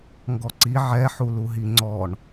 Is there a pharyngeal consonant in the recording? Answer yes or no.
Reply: yes